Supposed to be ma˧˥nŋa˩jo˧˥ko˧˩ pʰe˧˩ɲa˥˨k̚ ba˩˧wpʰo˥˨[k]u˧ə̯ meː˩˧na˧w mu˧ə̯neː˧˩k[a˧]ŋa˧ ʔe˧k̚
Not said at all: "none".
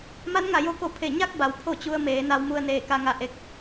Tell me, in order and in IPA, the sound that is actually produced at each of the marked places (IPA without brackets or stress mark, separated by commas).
t͡ɕ, a˧